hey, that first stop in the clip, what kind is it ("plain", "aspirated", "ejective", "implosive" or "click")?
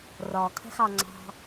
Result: aspirated